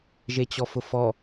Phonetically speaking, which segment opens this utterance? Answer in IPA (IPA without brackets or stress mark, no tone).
ʒ